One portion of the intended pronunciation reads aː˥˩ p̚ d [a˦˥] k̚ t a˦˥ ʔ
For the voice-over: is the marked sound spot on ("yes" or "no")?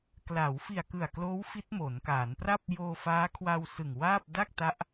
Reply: no